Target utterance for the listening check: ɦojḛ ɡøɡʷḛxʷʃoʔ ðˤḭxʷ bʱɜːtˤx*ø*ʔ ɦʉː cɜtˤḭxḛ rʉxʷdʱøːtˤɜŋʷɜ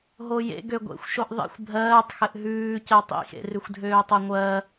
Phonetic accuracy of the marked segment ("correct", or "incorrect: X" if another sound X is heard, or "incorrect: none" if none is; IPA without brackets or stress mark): incorrect: ɘ